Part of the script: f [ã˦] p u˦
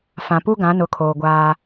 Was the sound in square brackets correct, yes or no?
no